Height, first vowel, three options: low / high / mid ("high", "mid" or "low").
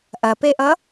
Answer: low